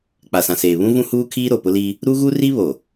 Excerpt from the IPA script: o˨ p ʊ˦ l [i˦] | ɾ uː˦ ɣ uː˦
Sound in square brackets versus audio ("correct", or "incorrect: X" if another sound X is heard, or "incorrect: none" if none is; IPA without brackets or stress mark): correct